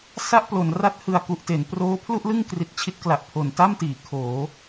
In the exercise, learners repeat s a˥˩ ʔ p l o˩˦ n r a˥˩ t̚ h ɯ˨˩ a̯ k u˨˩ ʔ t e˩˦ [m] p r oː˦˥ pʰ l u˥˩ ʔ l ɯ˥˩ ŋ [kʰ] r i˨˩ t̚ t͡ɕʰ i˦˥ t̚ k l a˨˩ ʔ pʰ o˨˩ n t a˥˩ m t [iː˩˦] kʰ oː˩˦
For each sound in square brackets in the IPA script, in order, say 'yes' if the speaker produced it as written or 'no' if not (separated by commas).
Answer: no, no, yes